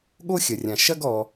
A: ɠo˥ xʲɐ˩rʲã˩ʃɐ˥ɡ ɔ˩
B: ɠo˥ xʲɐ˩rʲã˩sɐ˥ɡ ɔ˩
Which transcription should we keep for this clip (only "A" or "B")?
A